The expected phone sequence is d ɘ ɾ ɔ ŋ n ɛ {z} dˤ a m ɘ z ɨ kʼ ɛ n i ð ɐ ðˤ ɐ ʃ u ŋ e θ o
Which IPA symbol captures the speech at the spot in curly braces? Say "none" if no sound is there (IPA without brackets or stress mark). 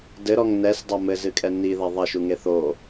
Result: s